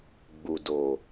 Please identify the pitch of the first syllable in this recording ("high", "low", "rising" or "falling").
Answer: low